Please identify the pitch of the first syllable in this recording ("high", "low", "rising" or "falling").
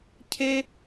high